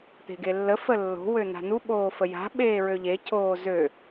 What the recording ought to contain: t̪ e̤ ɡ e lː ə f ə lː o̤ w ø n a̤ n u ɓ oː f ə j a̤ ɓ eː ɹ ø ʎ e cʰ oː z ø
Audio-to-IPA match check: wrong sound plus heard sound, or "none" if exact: none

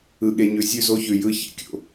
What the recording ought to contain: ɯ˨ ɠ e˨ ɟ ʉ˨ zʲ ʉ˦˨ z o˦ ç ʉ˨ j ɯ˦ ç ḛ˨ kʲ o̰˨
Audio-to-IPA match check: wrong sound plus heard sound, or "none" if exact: ɟ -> ɲ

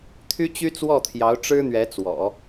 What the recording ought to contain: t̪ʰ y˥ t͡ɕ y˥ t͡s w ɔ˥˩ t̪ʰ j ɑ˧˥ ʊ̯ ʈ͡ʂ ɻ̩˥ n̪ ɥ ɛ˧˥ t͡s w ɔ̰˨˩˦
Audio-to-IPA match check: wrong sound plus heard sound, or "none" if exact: none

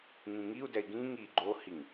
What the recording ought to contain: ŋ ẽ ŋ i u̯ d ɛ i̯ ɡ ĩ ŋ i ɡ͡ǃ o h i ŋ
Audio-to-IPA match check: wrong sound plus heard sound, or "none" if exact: ẽ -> ĩ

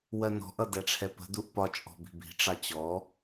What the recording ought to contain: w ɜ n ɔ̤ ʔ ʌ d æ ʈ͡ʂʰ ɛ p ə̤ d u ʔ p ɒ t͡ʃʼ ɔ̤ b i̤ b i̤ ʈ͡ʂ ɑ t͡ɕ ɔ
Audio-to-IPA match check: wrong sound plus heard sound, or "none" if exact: none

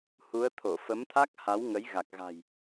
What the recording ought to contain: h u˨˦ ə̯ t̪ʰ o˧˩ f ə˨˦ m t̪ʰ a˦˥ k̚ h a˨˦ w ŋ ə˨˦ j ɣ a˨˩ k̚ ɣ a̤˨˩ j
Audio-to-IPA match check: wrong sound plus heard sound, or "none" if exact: none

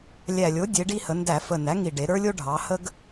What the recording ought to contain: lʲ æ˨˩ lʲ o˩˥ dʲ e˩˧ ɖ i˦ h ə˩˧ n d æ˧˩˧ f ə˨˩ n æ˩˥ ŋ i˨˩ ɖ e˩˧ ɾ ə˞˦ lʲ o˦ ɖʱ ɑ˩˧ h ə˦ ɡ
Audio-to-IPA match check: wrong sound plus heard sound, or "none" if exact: none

